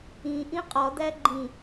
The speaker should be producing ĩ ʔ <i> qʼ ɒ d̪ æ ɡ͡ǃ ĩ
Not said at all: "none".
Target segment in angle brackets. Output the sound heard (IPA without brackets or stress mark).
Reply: ĩ